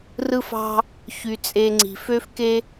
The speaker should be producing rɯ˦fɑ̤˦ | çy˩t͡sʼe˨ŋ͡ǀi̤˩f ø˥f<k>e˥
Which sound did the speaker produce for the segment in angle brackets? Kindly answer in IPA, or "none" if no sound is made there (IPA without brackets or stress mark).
k